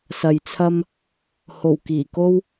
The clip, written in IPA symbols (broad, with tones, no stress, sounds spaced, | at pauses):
s ɐ˨ j t͡sʰ ɐ˥ m | h o˨˩ w k iː˨˩ k o˥ w